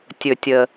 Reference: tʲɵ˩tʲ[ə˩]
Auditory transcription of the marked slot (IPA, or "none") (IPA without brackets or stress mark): ə˩